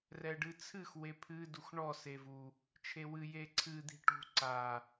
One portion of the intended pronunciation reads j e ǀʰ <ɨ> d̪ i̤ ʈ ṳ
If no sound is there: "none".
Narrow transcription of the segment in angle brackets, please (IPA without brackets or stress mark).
ɨ